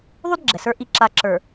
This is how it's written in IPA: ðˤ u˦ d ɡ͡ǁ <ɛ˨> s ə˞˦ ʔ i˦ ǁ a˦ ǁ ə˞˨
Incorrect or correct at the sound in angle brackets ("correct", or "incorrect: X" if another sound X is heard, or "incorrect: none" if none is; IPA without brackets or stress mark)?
correct